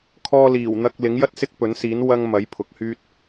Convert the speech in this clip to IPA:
kʰ ɔː˧ l iː˨˩ w n̪ ɐ˧ k̚ l ɪ˨˥ ŋ j ɐ˥ t̚ s ɪ˥ k̚ p ɵ˨˥ n s iː˨˥ n w ɐ˧ ŋ m ɐ˨˥ j pʰ ʊ˨˥ k̚ h yː˥ t̚

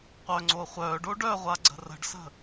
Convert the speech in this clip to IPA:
qʷ œ ŋ͡ǀ o χʷ œ ɖ o ɖ œ ʁʷ a ɡ͡ǀ ə̤ r ə̤ ɖ s ə̤

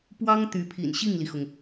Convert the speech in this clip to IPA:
p w ɑ˥ ŋ t̪ y˧˥ pʰ ḭ˨˩ n ɕ i˥˩ ŋ l i˩ x ʊ˩ ŋ

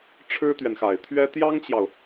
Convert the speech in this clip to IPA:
ʈ͡ʂʰ ɻ̩˥ t̪ ɥ ɛ˨ n x a˨˩ ɪ̯ t̪ʰ ɥ ɛ˥ t̪ j ɑ˥ ŋ t͡ɕ j ɑ˨ ʊ̯

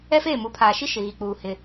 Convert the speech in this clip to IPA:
ɛ˦ f eː˦˨ m u˨˦ pʰ aː˨ ʃ i˦ ʃ ɪ˨ ɣ i˨ k͡p uː˨ h ɪ˨

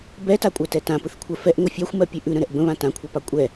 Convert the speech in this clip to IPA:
b ɛ t a kʷʼ ɜ t ɛ t ã p ɯ θ kʷʰ ɜ f ɛ ʔ ŋʷ ə fʲ ɑ xʷ m ɜ pʲ ʉ ʔ ʉ ɾ ə̃ ɾ ɛ ʔ b ə̃ β ã t ã kʷʰ a p ɑ kʷʼ ɛ

